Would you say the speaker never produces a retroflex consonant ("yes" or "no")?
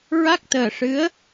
no